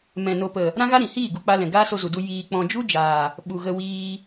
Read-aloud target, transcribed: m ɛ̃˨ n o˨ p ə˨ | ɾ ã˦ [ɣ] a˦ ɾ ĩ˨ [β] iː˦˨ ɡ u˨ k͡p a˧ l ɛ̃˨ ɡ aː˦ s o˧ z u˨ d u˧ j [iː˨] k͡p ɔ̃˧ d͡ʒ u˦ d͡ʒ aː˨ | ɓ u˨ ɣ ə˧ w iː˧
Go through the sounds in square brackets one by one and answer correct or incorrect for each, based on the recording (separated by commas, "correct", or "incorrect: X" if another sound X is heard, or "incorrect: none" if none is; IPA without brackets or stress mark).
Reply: correct, incorrect: h, correct